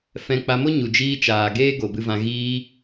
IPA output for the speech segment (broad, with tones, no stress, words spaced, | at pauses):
fɛ̃˧ k͡pa˧mo˦ ɲu˨d͡ʒiː˧ t͡ʃaː˨ɡeː˦ɡo˨ bɨ˧vã˧ ɣiː˧